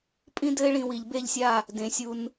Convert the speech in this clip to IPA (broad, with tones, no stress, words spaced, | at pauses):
pʼĩ˥dɘ˥ɪ̯ɭĩ˧ wi˩˧ʎ be˥˧ʎsʲa˥˧ | dẽ˩˧sʲu˧n